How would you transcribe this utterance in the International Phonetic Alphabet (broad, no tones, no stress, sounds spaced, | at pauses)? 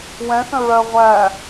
w ɛ̃ θ ə̃ ɹ ɜ ʁʷ æ